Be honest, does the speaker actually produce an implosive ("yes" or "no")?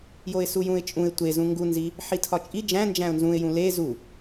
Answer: no